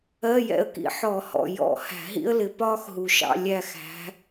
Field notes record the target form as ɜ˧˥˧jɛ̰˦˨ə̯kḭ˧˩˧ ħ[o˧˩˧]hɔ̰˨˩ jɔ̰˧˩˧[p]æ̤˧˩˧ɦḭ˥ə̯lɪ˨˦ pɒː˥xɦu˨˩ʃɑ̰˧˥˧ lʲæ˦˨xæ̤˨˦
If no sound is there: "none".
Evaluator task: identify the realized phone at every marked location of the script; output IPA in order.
ɔ˧˩˧, h

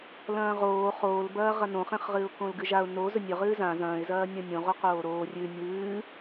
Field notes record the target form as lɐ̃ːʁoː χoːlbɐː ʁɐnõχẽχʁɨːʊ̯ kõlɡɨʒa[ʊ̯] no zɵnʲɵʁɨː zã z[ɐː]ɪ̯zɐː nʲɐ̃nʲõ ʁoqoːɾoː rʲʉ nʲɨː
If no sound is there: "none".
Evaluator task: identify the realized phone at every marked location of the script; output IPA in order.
ʊ̯, ɐ̃ː

